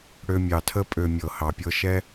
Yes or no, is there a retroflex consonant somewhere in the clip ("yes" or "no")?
yes